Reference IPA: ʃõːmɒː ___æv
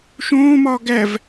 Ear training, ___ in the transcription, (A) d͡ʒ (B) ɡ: B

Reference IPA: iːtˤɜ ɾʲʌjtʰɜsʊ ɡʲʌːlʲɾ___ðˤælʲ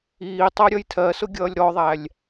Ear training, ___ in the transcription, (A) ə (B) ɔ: B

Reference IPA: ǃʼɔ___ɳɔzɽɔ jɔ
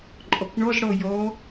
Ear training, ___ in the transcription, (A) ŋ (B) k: B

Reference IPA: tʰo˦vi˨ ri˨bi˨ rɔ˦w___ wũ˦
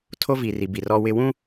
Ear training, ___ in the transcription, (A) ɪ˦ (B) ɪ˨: A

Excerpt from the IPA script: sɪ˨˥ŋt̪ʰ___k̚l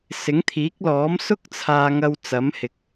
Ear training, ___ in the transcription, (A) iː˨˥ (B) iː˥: A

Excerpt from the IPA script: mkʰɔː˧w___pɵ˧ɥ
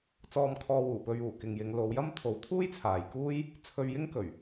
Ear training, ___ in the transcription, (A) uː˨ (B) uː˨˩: B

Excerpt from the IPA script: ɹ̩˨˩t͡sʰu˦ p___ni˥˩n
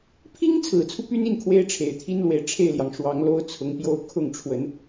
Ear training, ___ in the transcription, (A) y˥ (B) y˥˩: A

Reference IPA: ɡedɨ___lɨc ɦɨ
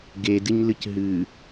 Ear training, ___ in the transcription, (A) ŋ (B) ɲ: B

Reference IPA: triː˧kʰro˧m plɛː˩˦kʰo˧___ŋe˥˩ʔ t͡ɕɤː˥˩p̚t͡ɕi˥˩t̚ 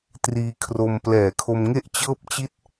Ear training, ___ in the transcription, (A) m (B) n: A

